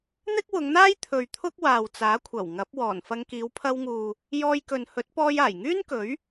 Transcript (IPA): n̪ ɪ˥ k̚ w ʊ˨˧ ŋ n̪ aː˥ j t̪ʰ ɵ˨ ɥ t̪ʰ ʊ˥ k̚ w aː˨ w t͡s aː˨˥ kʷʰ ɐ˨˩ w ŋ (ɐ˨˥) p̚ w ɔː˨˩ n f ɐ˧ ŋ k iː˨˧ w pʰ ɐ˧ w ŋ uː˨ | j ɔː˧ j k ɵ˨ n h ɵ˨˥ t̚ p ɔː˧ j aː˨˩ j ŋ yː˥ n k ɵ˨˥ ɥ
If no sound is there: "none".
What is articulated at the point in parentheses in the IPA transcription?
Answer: ɐ˨˥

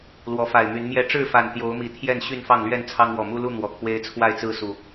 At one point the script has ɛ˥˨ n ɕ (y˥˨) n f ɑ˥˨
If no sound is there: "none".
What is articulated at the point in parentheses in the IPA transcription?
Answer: y˥˨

